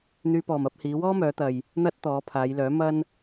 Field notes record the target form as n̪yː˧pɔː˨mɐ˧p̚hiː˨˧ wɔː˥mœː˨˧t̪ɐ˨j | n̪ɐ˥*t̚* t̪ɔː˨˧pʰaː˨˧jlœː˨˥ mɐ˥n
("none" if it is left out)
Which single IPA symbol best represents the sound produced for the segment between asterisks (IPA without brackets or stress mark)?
t̚